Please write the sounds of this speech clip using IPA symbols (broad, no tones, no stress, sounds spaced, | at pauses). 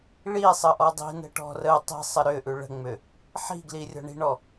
ɭ i sˤ ə ʔ ɔ dˤ i̤ n ə̤ ʈ ɔ̤ r ə tˤ i̤ sˤ ə ɾ ʏ ʔ ʉ ɭ ə̤ ŋ͡m ʏ | ħ i̤ ɡ l i rʲ ɔ̤ ɳ i̤ ɳ ɔ